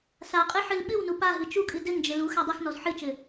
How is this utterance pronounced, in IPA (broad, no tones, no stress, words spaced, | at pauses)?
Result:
saqʼɨ ħɨlɓɨwnu paɦɨ t͡ʃukʼɨ dɘŋd͡ʒɘ lu xadˤɨxnɔz ħɨt͡ʃɘ